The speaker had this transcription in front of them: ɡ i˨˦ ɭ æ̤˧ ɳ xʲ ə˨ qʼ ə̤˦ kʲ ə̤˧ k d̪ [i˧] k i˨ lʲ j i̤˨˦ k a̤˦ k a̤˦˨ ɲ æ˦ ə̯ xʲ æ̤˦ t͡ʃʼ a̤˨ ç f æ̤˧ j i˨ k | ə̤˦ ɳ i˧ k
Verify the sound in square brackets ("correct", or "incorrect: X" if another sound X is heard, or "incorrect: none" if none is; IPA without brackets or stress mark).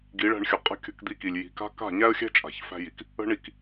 correct